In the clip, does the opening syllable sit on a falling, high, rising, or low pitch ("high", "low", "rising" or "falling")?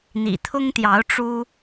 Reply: low